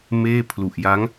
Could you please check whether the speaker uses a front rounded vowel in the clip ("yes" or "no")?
no